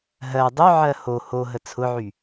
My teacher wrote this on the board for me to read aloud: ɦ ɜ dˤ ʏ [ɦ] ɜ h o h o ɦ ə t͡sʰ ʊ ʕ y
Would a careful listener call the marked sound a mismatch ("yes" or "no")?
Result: yes